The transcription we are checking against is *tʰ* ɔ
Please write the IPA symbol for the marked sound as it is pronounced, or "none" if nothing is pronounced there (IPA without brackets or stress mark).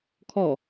kʰ